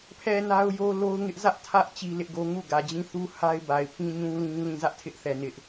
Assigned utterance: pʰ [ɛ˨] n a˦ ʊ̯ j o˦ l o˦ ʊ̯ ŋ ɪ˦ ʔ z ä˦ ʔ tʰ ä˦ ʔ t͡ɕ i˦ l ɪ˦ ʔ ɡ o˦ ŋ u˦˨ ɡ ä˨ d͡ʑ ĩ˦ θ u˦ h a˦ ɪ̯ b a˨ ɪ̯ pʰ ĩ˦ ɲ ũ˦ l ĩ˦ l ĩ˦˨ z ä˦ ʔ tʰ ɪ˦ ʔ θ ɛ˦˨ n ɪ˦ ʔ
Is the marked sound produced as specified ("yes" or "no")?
yes